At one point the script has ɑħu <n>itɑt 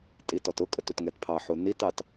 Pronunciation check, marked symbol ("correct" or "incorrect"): correct